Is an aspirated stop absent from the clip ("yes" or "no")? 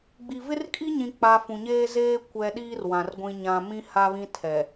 no